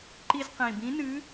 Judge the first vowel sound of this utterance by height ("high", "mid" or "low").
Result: high